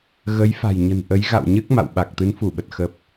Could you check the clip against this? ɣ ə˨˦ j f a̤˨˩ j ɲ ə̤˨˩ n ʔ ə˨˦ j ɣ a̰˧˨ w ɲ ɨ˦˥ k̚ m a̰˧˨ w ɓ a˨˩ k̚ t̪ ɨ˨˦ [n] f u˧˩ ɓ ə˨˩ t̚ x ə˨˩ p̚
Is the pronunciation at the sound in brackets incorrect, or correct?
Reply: correct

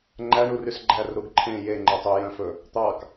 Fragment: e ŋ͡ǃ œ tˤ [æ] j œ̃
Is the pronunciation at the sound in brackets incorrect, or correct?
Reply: incorrect: œ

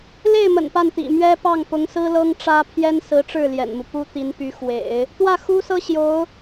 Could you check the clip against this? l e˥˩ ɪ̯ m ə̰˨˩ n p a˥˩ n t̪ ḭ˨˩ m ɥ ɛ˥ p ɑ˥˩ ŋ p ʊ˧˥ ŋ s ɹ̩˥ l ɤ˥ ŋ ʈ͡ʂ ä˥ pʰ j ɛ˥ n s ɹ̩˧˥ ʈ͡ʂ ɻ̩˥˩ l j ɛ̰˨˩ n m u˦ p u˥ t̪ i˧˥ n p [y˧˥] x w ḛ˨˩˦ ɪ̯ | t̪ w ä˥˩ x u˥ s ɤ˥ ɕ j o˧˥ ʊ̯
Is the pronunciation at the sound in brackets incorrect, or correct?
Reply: correct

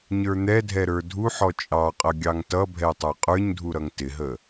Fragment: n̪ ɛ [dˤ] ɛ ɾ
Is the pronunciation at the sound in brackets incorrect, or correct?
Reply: incorrect: dʱ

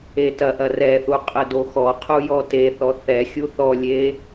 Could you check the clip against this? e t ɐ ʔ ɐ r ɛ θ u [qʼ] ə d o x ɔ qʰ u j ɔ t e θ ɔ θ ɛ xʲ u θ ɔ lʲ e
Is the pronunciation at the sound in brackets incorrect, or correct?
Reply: correct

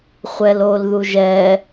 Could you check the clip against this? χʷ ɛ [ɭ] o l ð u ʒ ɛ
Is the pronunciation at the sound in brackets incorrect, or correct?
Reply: incorrect: l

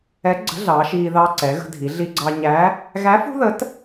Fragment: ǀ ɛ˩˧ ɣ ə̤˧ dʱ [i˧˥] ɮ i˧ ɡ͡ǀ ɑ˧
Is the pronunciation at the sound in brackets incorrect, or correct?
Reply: incorrect: i˩˧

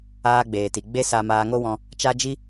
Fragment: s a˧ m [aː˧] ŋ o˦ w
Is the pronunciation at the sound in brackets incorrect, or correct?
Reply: correct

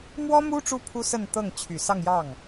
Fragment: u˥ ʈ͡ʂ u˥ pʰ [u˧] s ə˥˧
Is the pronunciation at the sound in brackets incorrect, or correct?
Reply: incorrect: u˥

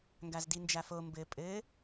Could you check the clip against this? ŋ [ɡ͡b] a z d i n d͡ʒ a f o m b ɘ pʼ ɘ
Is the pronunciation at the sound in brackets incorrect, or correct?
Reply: incorrect: ɡ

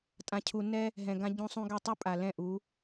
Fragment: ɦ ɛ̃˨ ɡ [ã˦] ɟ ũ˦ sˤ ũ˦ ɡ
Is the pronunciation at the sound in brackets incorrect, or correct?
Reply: correct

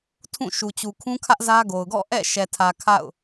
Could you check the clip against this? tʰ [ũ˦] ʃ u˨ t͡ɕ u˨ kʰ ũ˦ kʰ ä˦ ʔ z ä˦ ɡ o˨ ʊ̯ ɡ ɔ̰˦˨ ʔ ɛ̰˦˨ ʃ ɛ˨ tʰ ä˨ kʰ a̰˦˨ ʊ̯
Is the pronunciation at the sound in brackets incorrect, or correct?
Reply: incorrect: ũ˦˨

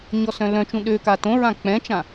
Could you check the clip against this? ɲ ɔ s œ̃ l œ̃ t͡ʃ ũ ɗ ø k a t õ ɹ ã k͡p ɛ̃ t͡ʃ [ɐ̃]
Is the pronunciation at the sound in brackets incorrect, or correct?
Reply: incorrect: ã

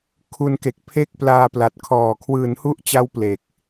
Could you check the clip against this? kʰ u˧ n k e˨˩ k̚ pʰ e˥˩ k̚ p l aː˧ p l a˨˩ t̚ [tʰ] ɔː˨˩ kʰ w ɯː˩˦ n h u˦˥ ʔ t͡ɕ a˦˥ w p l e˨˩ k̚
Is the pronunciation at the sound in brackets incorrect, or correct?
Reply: incorrect: kʰ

